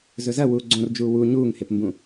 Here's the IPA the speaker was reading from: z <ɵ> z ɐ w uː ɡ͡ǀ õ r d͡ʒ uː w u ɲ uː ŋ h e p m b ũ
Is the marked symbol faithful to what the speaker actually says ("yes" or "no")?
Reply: yes